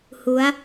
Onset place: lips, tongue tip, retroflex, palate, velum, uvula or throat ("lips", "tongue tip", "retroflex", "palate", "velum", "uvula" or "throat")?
throat